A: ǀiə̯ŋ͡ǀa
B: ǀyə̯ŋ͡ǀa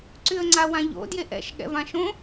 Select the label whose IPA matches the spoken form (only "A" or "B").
B